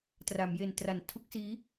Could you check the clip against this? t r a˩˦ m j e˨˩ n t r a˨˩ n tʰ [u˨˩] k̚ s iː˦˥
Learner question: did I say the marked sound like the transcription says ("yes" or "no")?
no